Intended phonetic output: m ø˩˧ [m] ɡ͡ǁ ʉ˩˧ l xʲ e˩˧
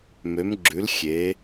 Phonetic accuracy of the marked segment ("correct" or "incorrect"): correct